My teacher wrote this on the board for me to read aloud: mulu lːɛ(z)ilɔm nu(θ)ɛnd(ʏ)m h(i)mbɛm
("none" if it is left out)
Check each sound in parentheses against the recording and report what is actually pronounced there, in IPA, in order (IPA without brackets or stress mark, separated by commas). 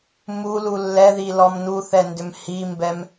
ð, θ, ʏ, i